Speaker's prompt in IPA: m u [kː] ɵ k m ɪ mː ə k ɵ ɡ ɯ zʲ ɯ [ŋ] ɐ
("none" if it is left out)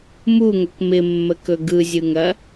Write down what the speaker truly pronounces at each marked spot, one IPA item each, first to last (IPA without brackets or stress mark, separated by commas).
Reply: ŋ, ŋ